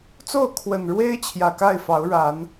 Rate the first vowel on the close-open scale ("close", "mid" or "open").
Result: mid